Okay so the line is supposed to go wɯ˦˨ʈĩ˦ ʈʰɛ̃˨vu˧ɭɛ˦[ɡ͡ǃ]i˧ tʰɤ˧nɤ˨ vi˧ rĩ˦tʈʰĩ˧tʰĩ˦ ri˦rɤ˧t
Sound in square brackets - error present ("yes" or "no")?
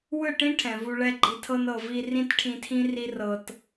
no